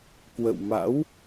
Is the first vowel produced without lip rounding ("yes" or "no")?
yes